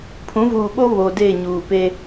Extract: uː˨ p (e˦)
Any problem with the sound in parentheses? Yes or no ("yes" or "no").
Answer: no